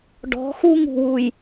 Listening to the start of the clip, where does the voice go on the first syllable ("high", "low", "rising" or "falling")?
rising